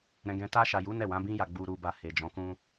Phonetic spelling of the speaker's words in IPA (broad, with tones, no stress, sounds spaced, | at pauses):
ɾ ɛ̃˧ ɡ ɛ̃˧ t a˧ ʃ a˨ j u˨˦ n ɛ˦˨ w ã˨˦ b ĩ˦ j a˧ ɡ͡b u˨ ɾ u˨ b a˨ h e˨ d͡ʒ ɔ̃˨˦ k ũ˧